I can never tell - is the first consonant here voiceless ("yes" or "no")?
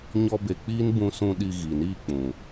no